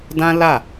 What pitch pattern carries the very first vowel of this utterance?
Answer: high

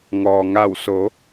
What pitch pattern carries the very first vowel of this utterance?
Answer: low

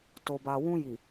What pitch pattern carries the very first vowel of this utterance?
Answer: low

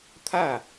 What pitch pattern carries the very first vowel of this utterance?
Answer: falling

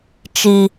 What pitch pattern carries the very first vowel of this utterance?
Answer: high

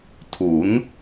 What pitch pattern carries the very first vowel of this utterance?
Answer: rising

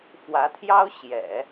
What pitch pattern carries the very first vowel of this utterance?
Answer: rising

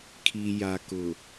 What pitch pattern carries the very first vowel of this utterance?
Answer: low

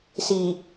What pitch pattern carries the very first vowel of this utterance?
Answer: low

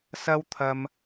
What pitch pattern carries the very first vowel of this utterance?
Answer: high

